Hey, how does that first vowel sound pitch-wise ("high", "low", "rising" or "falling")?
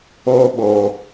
high